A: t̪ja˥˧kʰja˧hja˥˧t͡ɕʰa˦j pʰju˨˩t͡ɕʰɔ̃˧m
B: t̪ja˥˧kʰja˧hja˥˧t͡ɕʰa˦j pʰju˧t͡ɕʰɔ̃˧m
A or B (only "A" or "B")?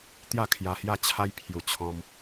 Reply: A